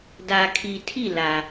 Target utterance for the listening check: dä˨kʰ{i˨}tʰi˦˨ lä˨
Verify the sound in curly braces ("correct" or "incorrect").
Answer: correct